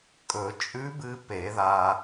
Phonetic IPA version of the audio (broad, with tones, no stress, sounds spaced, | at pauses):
kʼ ɵ˨˩˦ t͡ʃʼ ʉ˧˥ b ɨ˧ p e˨˩˦ ð a˧